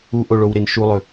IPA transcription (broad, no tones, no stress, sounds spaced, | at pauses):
u ʔ o ɭ o w ɾ e n ʃ u lˠ ɵ